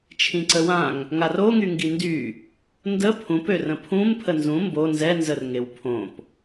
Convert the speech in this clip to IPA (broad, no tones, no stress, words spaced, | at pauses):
t͡ʃʰĩǀəwãŋ | ŋaroŋyŋɡi ndy | ndə pʰũpørə̃ pʰũm pʰənzũ mbo nzɛnzərŋew pʰõp